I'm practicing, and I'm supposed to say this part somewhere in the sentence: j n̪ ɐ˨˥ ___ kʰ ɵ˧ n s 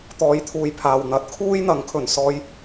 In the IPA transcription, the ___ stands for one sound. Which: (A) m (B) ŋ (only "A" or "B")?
B